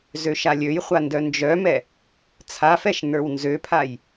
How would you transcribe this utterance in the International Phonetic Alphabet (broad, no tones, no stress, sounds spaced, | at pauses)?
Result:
z ø ʃ a lʲ ø j χʷ a n d œ n d͡ʒ œ m ɛ | t͡sʰ a f ɛ ʃ n ə˞ w n z ø pʰ a j